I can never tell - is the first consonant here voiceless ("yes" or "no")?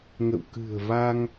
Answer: no